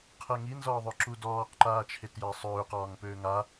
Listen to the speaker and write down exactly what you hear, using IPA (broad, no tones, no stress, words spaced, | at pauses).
qʰɛŋi nzɒːðˤøǁudɔːq ǃaːt͡ʃʰetjasˤøːq ɒːŋpøːŋa